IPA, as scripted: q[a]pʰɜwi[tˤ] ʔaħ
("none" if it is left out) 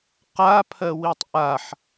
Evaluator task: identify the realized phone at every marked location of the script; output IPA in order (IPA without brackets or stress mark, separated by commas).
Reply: a, tˤ